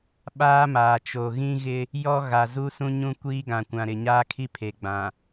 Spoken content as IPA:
ɓ aː˦ m aː˨ t͡ʃ o˨ ɣ ĩ˦ ɣ ɪ˦ | j ɔ˦ ɣ a˨ z u˦ s ũ˦ ɲ ũ˦ kʷ iː˦ ɡ ã˨ kʷ ã˨ ɾ ɪ˨ ɲ aː˦ kʰ i˦ pʰ e˨ ɡ͡b ã˨

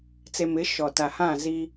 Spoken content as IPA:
t͡s e˨ m ɪ˨˦ ʃ ɔ˨ t a˨ h ã˦˨ z i˦

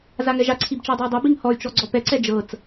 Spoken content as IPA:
z a ŋ ɛ ʒ a ǀʰ i b t͡ʃ ɤ dˤ ɤ i̯ dˤ ɛ b i ŋ h ɔ y̯ t͡ʃ ɔ ɡ͡ǀ ɔ p ɛ ǀ ɛ d͡ʒ ɤ t͡s

